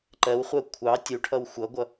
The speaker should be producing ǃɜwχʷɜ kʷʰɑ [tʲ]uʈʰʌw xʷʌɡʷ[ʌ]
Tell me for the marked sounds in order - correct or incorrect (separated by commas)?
correct, correct